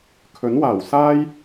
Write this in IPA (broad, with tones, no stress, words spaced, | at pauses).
kʰɵ˨˥nwaː˨˩wsaː˥j